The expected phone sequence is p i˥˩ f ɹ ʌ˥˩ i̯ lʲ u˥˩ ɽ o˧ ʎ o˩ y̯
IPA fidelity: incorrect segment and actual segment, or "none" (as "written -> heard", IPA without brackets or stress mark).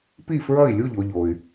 ɽ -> ʎ